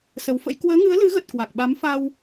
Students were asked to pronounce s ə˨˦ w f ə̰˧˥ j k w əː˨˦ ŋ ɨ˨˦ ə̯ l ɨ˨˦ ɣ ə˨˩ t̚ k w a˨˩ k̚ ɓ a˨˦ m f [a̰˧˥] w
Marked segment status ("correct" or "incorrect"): incorrect